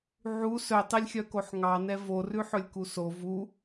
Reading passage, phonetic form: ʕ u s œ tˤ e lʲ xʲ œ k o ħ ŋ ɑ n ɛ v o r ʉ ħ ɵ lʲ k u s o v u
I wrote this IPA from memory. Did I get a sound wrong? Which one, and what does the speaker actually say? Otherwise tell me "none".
none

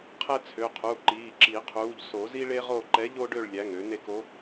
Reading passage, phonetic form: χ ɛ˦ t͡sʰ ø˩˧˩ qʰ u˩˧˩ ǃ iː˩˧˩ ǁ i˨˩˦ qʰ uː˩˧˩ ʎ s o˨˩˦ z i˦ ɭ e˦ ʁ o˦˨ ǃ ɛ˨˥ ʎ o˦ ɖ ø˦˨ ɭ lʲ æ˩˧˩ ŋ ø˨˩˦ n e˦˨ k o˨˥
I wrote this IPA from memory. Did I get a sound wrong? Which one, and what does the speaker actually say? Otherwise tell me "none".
χ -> qʰ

